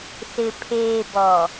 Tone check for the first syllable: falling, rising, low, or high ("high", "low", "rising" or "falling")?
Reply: low